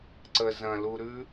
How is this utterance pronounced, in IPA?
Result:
ǀə zɐ̃luɾʉ

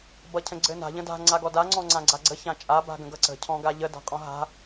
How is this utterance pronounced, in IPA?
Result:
bʌcʰə̃ɡ͡ǀɘna̤ ʎə̃da̤ ŋ͡ǀaɡɔda ŋ͡ǀɔ̃ŋ͡ǀãɡ͡ǀaɡ͡ǀə çãt͡ʃʼa ba̤ɡə̃ɡʌǀə̤ cʰɔ̃ɡaʎə da̤qʼɔ̃ɦa̤

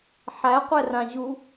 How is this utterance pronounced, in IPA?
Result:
ħæqʷɛrãʑu

